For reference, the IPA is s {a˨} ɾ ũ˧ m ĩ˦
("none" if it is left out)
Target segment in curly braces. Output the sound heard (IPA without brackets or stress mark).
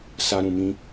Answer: a˦